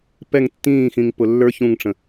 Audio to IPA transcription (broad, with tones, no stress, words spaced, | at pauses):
pɛ˥˧ŋtːĩː˥˧xĩ˧ŋ pʊ˧lːə˞˥ç ũ˥˧ŋʈ͡ʂə̃˧